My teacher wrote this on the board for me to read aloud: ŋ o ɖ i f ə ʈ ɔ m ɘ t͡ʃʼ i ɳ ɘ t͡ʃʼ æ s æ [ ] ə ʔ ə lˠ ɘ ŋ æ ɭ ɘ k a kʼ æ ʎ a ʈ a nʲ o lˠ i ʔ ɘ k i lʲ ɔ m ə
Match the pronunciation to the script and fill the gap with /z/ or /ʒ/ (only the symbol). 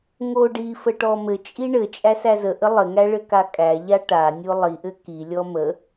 z